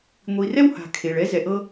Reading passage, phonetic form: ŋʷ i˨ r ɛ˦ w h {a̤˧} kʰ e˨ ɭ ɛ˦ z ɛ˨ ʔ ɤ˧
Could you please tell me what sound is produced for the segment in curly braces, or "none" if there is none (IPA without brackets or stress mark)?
a̤˨